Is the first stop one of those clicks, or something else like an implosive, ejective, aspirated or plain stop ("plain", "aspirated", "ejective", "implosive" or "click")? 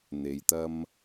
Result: plain